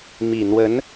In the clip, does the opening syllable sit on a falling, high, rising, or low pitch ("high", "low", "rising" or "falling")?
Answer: low